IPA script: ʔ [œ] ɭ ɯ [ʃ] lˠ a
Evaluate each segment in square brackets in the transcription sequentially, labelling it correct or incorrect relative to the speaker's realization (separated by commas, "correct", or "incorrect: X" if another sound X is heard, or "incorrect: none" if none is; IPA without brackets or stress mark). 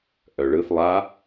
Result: correct, incorrect: θ